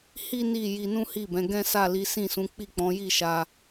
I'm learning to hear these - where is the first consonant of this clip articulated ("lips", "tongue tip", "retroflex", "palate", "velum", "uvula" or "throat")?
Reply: throat